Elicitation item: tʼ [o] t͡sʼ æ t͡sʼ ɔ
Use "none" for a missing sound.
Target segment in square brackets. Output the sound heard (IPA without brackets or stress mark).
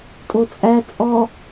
o